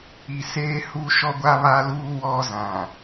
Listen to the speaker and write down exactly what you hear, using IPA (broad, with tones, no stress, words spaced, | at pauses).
i˨seː˦hu˦ ʃɔ˦ɡʷa˦βa˦luː˦ wɔ˦ zã˨